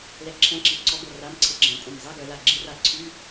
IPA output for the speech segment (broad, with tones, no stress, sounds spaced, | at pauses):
l ɛ˧˥˧ ǁʰ ɛ̃˧˥˧ ǁ i˨˩˦ ǀ ɔ˧˥ ɡ o˧˩ r a˧˥˧ m ǀʰ ɪ˧ ɡ͡ǁ ɛ̃˨˩˦ kʷʼ œ̃˧˩ m zˤ ɛ˧˥˧ ɡ œ˨˩˦ l a˧˩ ɡ͡ǁ i˧˥ r a˧˩ ǀʰ y˧˥˧